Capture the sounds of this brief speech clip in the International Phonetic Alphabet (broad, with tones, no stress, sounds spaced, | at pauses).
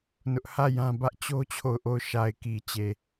n ʊ˦ ʔ h ä˦˨ j ã˦ b ä˦ ʔ t͡ɕ o˦ t͡ɕʰ o˦˨ ʊ̯ ʔ o˦˨ ʊ̯ ʃ a˨ ɪ̯ k i˨ t͡ɕ e˨